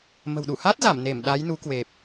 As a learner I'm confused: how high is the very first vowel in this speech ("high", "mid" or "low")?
mid